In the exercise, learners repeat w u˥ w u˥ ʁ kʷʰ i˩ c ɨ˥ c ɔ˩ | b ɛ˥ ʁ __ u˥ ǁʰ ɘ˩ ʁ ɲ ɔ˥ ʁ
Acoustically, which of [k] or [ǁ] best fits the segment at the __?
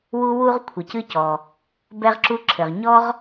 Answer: ǁ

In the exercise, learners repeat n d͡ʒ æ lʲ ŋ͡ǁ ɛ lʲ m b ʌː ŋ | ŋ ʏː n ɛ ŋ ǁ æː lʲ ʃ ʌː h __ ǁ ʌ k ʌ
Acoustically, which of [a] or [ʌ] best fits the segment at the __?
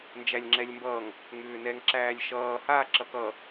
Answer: a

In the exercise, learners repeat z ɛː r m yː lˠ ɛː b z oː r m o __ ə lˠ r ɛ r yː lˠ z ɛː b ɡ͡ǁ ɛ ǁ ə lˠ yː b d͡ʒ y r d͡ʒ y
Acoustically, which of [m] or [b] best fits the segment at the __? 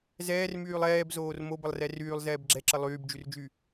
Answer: b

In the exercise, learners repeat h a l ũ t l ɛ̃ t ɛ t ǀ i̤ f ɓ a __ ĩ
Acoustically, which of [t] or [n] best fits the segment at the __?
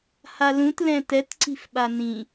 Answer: n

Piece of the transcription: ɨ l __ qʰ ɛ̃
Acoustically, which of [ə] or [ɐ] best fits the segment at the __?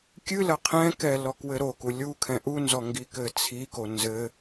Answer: ɐ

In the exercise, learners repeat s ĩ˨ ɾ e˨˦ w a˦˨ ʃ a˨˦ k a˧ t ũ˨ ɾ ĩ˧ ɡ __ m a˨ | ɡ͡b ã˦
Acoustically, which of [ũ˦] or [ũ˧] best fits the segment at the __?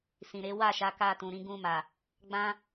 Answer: ũ˧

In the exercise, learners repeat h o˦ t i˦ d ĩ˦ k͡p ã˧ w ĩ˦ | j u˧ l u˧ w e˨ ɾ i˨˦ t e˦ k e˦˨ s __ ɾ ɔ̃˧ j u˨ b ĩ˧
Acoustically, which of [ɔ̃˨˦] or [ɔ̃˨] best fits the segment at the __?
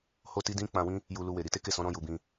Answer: ɔ̃˨˦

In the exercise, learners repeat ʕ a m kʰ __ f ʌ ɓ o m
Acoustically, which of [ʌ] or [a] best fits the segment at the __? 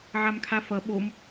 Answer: a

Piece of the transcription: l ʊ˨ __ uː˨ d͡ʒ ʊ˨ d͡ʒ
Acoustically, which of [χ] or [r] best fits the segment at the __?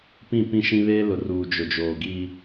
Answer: r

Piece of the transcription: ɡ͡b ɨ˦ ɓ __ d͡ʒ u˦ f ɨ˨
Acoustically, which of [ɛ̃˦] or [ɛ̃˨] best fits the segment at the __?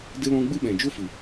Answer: ɛ̃˨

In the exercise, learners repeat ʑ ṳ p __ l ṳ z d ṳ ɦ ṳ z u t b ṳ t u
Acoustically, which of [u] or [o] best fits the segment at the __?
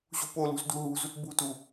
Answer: o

